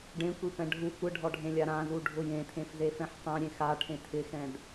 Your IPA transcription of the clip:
ɖẽkʷipɛ̃ ɖʱu kʷɪɖʱɔɖʱẽlʲa ɾãzuɖʱʊ jẽtʰẽfzefɛ̃ħ tˤɛ̃ɾʲẽ xaʈʰẽ tʰɪxɛ̃d

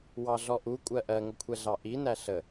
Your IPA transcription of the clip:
wɑɮɔʔu kʷʼɜʔɜŋəkʷʰɛ ɮɑʔi næɬə

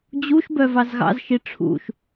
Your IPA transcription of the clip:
d͡ʑuʃbœvɑz ɣɑ̰zʃi ʈ͡ʂʰṵʃ

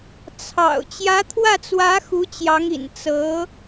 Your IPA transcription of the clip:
t͡sʰɑ̰˨˩ʊ̯ t͡ɕjä˧˥t̪ʰwä˥˩t͡swä˧˥ xu˧˥t͡ɕjɑ˧˥ŋḭ˨˩n t͡sɤ˧˥

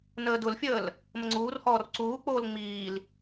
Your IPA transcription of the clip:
nəːdʊlfʲəːl | məŋ͡ǀuːrhɔːr ǀuːk͡poːl ŋ͡miːl

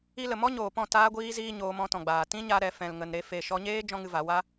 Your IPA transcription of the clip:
i˦lə˧ mɔ˦ɲoː˨pɔ̃˦˨ taː˦ɡʷiː˦ziː˦ ɲoː˧mɔ̃˧tɔ̃˨ɡ͡baː˨ tĩ˦ɲa˧ɾɛ˨ fɛ̃˨lŋə˨nɾe˨˦ fe˨ ʃɔ˧ɲeː˦ d͡ʒɔ̃˦ŋɨ˧va˨˦ wa˦

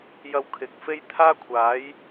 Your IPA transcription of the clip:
jɐ˧wkʰɪ˨k̚fe˥j t̪ʰaː˥kʷʰaː˨˥j

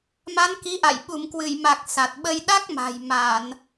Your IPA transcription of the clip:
ma˨˦nki˨˦ʔa̰˧˨j ɓu˧˩mkwɨ˧˩jma˨˩k̚ sa˨˩t̚ɓə˧j ɗa˦˥k̚ma̤˨˩j ma˧˩˨n

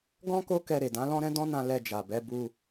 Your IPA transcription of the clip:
ɡɔ̃˦ko˦ kɛ˧ ɾe˨dã˨˦lɔ̃˦ɾɛ̃˦ dɔ̃˦nã˧ lɛ˧d͡ʒa˨bɛ˨˦ bu˧

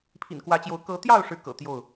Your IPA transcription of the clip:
pʰḭ˨˩nkwä˨˦t͡ɕjo˨˦ʊ̯ kɤ˨˦t̪jɑ˥˨ʊ̯ ʂɻ̩˦kɤ̰˨˩t̪jo˥˨ʊ̯

